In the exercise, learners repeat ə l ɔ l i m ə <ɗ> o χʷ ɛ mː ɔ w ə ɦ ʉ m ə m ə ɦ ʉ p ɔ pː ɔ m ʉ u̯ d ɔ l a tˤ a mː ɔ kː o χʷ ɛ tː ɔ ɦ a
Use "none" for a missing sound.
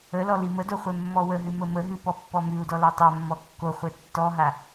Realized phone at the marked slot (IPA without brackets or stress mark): d